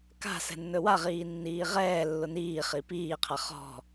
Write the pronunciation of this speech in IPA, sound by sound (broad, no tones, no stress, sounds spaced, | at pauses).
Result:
k a̤ s ɛ̤ nː ɵ w a ʁ iː nː iː ʁ ɛː lː ʊ n iː χ i p iː qʰ a χ ɔ̤